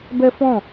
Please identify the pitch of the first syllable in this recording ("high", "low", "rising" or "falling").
high